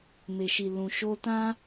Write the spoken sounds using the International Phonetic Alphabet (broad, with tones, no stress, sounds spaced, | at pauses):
m e˨ ʃ i˨ l ũ˨ ʃ o˧ t ã˦